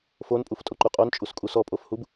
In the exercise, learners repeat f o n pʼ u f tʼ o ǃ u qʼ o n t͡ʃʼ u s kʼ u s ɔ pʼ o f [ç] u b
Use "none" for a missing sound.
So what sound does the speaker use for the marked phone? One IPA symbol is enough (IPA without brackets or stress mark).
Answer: h